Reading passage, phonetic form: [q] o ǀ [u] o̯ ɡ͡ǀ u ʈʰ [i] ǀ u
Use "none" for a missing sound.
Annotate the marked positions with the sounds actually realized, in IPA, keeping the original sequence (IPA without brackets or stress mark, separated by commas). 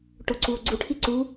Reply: ʈ, u, i